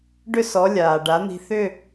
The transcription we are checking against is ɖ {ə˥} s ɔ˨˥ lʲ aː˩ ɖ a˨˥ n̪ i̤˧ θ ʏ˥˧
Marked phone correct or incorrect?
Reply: incorrect